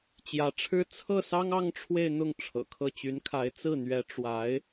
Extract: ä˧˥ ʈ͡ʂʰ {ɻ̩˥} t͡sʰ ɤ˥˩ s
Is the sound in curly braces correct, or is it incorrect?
correct